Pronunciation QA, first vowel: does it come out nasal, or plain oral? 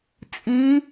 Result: nasal